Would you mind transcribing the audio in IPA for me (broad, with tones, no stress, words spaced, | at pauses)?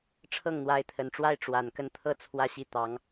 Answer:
ʈ͡ʂʰɤ˥˩ŋn̪wa˧˥ɪ̯t̪ʰə˨˩nʈ͡ʂwa˥ɪ̯ ʈ͡ʂwa˨˩nkə˥˩n t̪ʰɤ˥ t͡sʰwä˥˧ɕi˥˩ t̪ɑ˧˥ŋ